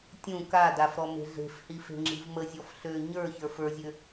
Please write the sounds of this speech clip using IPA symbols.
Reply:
tʲ ũ k a d a f ɾ ɔ m e̤ ɮ e̤ f h i f e̤ ŋ͡ǁ i̤ v m ə zʲ ɔ f ɬ ø ɲ ə˞ ç ə˞ f ə˞ zʲ ø

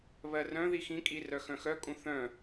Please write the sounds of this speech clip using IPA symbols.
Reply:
β ɜ r œ̃ ð i x ĩ kʼ i r œ x œ̃ x œ kʼ ũ θ œ̃

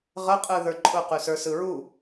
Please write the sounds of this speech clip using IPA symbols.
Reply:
ʁ ə qʼ ɯ ð ə˞ ǃʼ ʊ q ʉ s ə˞ s ɯ ɹ u

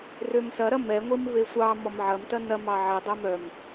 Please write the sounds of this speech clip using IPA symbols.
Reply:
r ø m s ɐ ɾ ɐ m ɛ ŋʷ i m v e sʷ ɑ m ɔ m ʕ ɐ m t ɐ n ɐ m ɑ ʕ ɛ dˤ œ m œ m

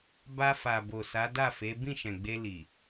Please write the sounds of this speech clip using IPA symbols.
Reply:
b a˧ f a˨ b o˨ s a˨˦ d a˦˨ f e˨˦ b ĩ˦˨ ʃ ɛ̃˨ ɡ͡b e˧ l i˨

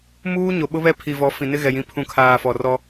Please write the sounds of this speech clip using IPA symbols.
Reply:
m uː˦ ɲ o˨ ɓ ʊ˦ β ɛ˦ pʰ i˨ v ɔ˨˦ f ĩ˨ n ɪ˦ ɣ ɛ˨ j ĩ˨˦ pʰ ũ˨ kʰ aː˨ f ɔ˨ r ɔ˦

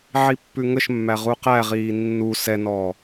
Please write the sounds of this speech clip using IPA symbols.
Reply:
ʕ i pː ʉ ŋ ə ʃ mː æ ʁ u q æ ʁ iː nː u s ɛ n ɔː

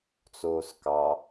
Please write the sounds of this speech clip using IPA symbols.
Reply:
t͡s oː s k ɑ

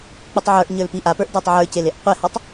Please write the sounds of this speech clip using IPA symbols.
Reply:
k͡p u tˤ ʕ ə˞ ʔ ɲ ə˞ l p i ʔ a p ə˞ ʔ d ə˞ tˤ ʕ ə˞ c e l e ʔ qʷ e h ɔ tˤ

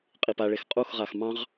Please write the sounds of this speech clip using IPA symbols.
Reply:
qʼ i p a ɭ e x qʼ u x ʁ a x m ɑ̃ ʁ

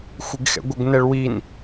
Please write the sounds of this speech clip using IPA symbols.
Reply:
xʷ ɪ ɡ x ɛ̰ ɡʷ ə ɡ n ɛ ɭ w i n

